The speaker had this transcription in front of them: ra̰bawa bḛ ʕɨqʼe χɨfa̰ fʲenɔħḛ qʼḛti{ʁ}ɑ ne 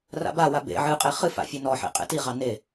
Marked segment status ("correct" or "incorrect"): correct